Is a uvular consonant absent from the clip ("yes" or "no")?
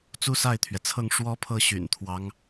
yes